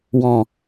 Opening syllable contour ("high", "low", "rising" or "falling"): low